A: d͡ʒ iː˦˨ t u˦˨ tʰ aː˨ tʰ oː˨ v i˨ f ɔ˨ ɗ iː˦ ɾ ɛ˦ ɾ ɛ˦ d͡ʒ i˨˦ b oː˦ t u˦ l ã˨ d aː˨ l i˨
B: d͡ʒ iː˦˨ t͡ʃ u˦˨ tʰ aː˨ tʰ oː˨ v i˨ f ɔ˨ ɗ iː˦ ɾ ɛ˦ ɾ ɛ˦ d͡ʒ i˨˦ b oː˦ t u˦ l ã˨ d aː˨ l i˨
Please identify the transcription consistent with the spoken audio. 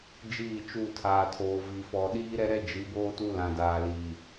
B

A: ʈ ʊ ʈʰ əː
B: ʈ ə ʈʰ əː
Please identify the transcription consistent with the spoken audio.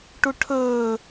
A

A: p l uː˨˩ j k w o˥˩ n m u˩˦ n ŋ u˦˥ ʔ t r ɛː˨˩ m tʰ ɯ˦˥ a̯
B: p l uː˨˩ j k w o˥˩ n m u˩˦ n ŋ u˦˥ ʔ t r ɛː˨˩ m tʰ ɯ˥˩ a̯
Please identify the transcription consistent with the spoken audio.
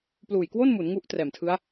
A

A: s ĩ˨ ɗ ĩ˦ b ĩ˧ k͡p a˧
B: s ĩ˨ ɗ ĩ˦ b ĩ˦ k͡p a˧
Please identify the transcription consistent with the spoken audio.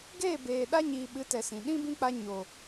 B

